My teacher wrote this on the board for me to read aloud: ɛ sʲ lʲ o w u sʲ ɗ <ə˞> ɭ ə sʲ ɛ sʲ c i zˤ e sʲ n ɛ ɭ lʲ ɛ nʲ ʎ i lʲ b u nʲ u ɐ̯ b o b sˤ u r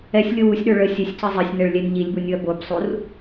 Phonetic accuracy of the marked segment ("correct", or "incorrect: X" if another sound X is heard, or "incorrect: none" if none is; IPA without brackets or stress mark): correct